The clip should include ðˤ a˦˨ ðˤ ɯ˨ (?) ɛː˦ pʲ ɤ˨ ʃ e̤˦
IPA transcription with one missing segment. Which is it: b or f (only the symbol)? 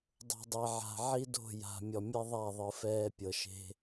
f